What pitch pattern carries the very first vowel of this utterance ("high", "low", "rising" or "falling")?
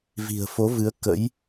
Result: low